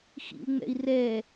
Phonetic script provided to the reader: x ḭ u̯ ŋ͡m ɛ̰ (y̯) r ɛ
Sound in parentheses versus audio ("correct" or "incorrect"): incorrect